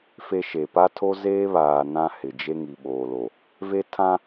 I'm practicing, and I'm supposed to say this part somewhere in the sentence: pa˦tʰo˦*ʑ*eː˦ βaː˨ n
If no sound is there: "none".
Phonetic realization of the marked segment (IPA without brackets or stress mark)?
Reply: z